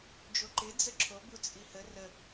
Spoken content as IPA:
d͡ʒ o ǃ ɪ d͡z ə ǁʰ o b u t͡sʼ i h ə r ə

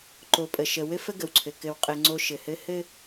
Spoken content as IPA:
ǃ o˨ pʼ ə˨ ʃ ə˨ w ɘ˦ f ə˦ ɡ ə˨ w ǀʰ ɘ˨ k ɘ˨ w qʼ ɘ˨ ŋ͡ǀ o˦ ʃ ɘ˨ h ɘ˦ h ɘ˦

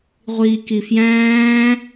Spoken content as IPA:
ʁʷ iː k i f j æ̃ː

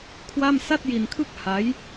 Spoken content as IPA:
kʰ w a˥˩ m s a˥˩ t̚ j i˧ n kʰ ɯ˥˩ k̚ h a˦˥ j

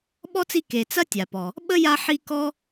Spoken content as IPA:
ɓ ɔ˥ t͡s i˦ k e˨ t͡s ɐ˥ tʲ a˩ p ɔ˩ | ɓ ə˥ j a˦ ħ i˦ k ɔ˥

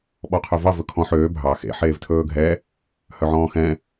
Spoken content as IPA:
ɓ ɔ qʰ œ v ɑ v ɵ kʰ ɔ̃ ħ øː bʱ ɑ x ḛ ħ eː v tʰ ɵː ɡʱ ɛ | h œ ʕ ɔ̃ː x ɛ̃

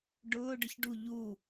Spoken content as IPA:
ɖ ʊː ɖ ə ç ɖ u ʎ u

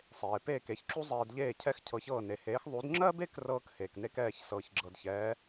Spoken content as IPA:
sˤ eː˩ p eː˥˩ k e˧ ç ǁ u˥ zˤ eː˧ d ʎ eː˥˩ cʰ ɛ˥˩ x cʰ ɤ˩˥ ç ɤː˥˩ n e˩ h eː˩˥ x ðˤ u˩˥ d ŋ͡ǁ ɜ˥ b e˥ k r ɤː˥ k h eː˩ k n e˥ k ɛː˥˩ ç s ɤː˩ ç ɡ͡ǁ ɤ˩ d ç ɛː˩˥

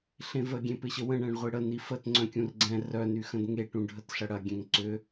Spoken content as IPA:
ɬ ẽ v ə ɡʲ ẽ p ɪ ɕ ə w ə̃ ɳ ɛ̃ ɳ ʁʷ i ɽ ə n i f ə t ŋ͡ǀ œ̃ kʲ ũ r ɡ͡ǀ ɛ̃ r œ n y x ə̃ d ŋ e ʈ ũ ɖʱ ə t ɬ ɐ ɽ ɐ ɡʲ ɛ̃ ŋ ǀ ʏ

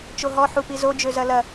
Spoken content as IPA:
t͡ʃ o ɦ ɔ ħ u p i z o d͡ʒ ø z ɐ l ɐ

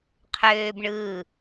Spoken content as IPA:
qʰ øː b ɳ ɯː

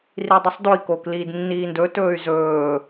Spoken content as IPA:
r i dˤ ə sˤ d o i̯ k oː k l iː d nː iː n d ɵ t ɵː y̯ z ɵː

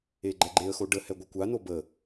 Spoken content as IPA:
e ɡ͡ǃ ɛ ɡ͡ǃ e ə̯ x o ɖ ə h ɛ ɡʷ ə kʷ a n o b ə

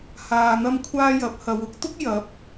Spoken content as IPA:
h aː˧ n̪ ɐ˥ m kʷʰ aː˥ j ɐ˨˥ p̚ h ɐ˨˧ w ʊ˨˥ k̚ t̪ ʊ˥ k̚ j ɐ˨˥ p̚

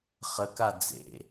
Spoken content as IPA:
χ ə k a d͡z ḛ

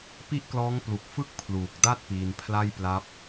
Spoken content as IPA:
p i˥˩ ʔ k l ɔː˦˥ ŋ p l u˨˩ k̚ f ɯ˥˩ k̚ pʰ l uː˨˩ k̚ d a˥˩ t̚ p iː˧ n pʰ l a˥˩ j p l a˦˥ p̚

